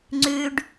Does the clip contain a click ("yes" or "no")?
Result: yes